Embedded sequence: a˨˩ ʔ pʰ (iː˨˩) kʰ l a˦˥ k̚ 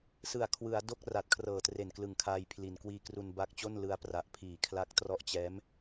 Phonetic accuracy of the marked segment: correct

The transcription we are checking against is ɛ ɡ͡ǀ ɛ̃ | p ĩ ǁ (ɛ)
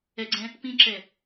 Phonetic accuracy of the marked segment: correct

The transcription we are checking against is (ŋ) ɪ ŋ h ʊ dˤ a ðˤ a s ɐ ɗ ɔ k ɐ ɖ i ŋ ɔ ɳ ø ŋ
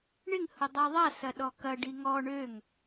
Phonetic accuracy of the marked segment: incorrect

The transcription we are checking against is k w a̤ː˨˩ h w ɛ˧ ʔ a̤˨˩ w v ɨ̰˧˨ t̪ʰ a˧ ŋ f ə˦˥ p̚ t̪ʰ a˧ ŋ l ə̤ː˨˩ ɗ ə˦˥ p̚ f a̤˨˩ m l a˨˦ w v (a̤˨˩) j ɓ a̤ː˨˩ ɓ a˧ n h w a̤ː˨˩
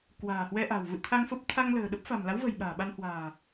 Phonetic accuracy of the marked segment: incorrect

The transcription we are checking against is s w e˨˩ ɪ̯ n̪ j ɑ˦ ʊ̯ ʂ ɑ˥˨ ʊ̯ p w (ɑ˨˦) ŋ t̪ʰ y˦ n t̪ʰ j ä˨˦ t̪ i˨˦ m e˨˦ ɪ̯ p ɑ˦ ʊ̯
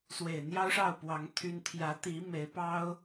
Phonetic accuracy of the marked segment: correct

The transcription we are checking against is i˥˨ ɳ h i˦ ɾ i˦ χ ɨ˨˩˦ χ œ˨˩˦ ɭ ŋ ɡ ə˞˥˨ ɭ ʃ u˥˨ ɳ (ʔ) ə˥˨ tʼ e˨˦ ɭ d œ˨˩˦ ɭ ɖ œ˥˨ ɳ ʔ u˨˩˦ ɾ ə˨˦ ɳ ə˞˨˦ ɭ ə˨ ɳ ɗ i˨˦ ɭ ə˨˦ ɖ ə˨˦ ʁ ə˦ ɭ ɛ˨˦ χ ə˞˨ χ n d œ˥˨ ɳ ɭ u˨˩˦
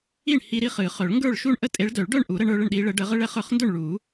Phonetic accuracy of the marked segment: correct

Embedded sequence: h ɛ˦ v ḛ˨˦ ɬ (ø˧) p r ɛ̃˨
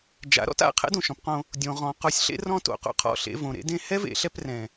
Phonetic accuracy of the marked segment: incorrect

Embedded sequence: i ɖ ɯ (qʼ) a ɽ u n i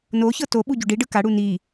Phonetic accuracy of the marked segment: incorrect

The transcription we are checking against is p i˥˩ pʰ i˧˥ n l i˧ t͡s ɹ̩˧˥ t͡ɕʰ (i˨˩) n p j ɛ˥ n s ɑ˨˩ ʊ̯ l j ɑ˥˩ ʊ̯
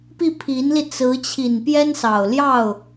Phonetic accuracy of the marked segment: correct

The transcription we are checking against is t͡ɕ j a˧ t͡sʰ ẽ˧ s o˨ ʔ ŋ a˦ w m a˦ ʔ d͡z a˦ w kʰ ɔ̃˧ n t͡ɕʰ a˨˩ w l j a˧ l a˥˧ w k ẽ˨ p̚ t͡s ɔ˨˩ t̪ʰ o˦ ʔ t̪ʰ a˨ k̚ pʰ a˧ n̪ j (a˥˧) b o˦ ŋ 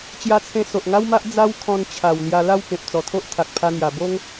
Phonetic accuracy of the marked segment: incorrect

